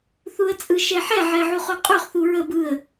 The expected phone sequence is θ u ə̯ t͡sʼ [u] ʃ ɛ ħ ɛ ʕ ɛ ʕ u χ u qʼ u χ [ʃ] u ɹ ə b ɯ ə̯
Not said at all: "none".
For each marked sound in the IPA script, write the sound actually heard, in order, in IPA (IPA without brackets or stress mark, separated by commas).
ɯ, θ